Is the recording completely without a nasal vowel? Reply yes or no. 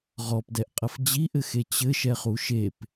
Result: yes